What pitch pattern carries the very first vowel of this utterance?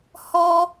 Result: high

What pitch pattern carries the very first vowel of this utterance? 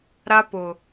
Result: high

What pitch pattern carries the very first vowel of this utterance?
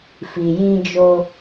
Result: low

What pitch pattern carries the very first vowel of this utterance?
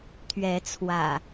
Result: rising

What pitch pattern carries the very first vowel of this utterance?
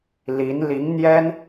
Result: rising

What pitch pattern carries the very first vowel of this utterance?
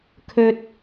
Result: high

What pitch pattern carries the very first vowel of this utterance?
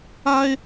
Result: high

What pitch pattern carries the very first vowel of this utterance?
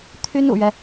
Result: high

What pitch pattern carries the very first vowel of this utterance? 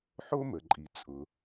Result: high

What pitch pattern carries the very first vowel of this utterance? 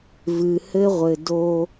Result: low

